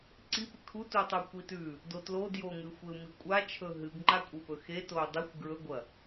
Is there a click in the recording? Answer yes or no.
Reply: yes